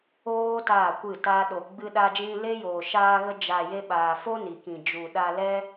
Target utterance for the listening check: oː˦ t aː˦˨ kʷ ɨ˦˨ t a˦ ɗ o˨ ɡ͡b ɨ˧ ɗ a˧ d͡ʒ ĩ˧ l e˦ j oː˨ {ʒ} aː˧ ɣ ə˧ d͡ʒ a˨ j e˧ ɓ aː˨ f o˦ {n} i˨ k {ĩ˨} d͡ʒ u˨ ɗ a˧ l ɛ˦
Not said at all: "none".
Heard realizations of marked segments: ʃ, n, ĩ˨

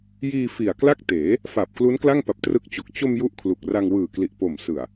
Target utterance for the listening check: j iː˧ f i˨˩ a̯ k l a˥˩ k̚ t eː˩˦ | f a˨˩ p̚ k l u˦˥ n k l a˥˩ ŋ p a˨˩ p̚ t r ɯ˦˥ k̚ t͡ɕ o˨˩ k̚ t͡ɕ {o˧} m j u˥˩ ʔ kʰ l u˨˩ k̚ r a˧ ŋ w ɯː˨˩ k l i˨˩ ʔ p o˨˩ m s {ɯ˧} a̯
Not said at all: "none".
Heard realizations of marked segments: o˧, ɯ˨˩

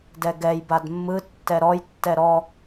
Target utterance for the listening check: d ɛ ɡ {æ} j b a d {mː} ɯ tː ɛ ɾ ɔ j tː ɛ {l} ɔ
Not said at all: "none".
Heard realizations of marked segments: ɛ, mː, ɾ

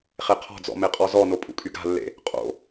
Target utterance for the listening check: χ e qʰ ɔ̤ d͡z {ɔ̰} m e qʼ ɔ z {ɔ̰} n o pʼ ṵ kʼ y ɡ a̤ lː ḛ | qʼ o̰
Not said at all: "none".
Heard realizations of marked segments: ɔ̰, ɔ

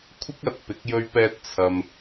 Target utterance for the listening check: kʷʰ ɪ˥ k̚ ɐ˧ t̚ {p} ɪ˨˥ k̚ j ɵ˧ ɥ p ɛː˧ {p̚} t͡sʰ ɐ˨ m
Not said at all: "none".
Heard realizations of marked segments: p, t̚

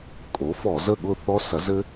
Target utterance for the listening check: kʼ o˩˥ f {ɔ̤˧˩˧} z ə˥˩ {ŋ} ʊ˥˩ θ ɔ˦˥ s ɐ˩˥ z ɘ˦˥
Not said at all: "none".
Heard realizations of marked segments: ɔ˧˩˧, ɠ

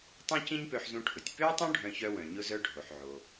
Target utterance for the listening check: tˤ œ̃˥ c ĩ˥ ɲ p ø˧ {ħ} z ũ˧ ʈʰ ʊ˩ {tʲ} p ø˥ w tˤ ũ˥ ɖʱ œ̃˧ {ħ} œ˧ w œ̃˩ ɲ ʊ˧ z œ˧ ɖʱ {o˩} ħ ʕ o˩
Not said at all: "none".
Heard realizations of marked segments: ħ, tʲ, ç, o˩

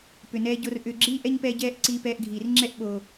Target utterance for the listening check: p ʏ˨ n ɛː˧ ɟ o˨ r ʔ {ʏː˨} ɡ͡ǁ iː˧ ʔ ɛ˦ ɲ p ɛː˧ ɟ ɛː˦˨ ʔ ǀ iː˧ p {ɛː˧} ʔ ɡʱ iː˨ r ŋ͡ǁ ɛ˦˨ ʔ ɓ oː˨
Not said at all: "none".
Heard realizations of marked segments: ʏː˨, ɛː˧

